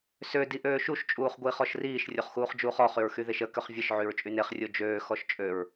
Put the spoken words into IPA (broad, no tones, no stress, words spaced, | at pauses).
sø diʔøːʃuʃ t͡ʃʼuːχɡʷiːχɔʃriːʃ rʲoχxuːχd͡ʒuːχɔ χyɹxyðeʃə køχvʲəʃ ʕyɹt͡ʃʼyneχ rʲod͡ʒøː xɔʃt͡ʃʼøɹ